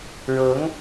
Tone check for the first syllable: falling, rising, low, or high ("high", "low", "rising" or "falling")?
rising